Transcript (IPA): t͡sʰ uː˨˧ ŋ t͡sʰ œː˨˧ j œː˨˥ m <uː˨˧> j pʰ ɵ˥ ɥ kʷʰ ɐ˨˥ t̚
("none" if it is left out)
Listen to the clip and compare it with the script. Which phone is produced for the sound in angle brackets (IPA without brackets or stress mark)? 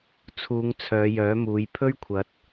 uː˨˧